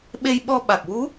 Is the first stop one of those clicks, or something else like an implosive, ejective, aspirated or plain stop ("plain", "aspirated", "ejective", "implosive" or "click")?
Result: implosive